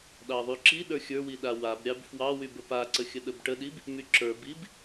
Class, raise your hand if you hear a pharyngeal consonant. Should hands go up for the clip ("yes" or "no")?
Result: no